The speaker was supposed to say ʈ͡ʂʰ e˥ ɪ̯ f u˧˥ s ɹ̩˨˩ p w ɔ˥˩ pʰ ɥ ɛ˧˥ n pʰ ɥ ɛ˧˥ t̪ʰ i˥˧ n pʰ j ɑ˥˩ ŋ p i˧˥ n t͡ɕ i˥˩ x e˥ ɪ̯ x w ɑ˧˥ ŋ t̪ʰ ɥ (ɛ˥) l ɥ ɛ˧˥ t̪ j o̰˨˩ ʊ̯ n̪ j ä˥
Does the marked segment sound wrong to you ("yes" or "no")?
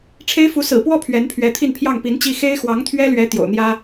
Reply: no